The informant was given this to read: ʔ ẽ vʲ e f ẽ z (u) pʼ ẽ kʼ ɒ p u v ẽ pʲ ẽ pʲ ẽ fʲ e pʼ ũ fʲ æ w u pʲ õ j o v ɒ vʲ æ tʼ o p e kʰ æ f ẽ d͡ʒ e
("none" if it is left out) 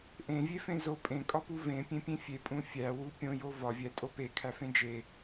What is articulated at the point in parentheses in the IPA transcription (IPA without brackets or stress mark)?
o